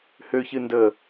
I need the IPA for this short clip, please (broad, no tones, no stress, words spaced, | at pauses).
høçɨndəː